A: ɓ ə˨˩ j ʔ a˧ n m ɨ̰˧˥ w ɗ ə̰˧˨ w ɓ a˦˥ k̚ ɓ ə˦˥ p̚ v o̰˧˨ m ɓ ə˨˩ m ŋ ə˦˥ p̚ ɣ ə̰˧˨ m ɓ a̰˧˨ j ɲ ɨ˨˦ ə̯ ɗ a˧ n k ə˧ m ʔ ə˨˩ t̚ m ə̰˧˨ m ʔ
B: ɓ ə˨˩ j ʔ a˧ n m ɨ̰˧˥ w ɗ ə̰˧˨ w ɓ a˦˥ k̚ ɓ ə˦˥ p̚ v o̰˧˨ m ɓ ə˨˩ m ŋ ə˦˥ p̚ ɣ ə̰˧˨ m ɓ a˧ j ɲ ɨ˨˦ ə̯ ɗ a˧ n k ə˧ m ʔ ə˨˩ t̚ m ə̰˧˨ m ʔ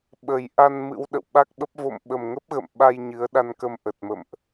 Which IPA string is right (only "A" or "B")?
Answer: B